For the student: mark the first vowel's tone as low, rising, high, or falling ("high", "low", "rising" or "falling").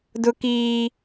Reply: high